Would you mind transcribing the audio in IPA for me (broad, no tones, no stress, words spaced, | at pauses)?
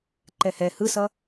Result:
ǃɛhɛ hɯsʌ